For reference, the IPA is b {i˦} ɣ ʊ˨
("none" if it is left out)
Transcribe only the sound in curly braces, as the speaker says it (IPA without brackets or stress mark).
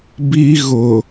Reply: i˦